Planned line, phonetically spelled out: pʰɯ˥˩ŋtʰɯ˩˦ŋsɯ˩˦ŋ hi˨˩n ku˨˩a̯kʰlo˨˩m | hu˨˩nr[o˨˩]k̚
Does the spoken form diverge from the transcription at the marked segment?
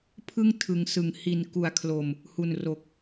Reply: no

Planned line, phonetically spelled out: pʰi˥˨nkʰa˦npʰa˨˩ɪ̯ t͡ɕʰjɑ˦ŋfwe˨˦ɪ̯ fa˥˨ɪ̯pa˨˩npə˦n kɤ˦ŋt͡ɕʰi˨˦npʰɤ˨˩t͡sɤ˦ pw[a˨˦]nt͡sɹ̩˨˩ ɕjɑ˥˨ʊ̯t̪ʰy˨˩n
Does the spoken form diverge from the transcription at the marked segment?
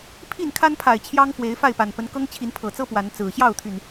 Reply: no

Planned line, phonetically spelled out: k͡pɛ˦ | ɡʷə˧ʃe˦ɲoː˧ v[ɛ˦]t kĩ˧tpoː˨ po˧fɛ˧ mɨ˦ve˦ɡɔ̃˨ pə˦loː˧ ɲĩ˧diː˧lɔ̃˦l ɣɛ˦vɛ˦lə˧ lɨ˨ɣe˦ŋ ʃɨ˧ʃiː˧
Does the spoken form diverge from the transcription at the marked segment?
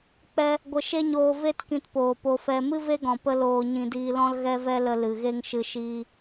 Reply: yes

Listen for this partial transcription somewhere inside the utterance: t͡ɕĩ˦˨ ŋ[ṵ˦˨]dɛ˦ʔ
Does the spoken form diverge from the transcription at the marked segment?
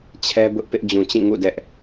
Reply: no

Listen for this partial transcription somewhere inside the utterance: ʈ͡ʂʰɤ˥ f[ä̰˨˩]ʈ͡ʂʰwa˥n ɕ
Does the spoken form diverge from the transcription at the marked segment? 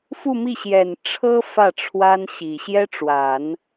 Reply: yes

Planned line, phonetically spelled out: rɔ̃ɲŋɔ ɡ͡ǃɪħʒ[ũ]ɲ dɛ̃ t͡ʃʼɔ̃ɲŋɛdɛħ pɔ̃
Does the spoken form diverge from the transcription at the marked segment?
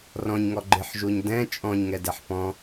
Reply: yes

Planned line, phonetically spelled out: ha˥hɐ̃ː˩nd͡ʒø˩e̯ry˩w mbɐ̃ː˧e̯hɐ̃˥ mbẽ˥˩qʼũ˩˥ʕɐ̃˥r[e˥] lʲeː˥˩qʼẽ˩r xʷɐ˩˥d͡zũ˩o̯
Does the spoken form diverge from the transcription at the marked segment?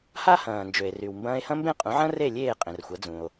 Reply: yes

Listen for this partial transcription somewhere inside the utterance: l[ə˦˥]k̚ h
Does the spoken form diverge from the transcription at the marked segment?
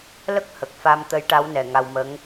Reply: no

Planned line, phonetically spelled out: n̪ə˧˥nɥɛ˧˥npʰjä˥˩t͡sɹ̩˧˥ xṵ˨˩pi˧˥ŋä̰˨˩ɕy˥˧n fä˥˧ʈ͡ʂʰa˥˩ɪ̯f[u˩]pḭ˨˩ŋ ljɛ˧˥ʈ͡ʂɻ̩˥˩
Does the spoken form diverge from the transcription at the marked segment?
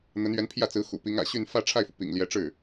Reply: no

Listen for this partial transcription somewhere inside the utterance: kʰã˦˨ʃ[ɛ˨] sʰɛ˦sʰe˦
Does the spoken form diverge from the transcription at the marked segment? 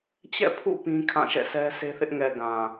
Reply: yes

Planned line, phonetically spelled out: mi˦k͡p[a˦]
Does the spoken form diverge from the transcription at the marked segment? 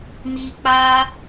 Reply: no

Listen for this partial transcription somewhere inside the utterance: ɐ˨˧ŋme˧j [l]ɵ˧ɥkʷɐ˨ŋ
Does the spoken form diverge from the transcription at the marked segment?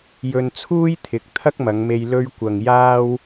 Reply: no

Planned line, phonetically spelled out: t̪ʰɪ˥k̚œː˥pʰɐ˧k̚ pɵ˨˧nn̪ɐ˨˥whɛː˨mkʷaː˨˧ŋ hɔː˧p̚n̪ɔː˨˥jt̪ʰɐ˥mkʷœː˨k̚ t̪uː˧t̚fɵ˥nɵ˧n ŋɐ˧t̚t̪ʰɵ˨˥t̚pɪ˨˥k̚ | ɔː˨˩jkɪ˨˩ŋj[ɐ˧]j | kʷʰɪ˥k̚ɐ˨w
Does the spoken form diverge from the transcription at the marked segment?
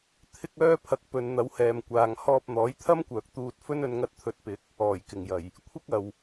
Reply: yes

